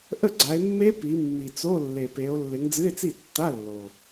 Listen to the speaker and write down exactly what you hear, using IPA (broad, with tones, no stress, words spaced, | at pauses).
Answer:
ʔə˥˩ɡ͡ǀa˨˦e̯mːe˦˥ pi˨˦ mːi˨t͡so˧˥˧lːe˨pe˨˦o̯ lːɪ˨˦ŋd͡zɨ˧˥˧e̯t͡si˥˩tːa˧˥˧ lːo˨